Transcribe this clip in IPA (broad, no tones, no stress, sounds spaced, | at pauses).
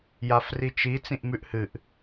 j a f r i t͡ʃ i t͡s ĩ ʔ m ʉ ʔ h ɨ ʔ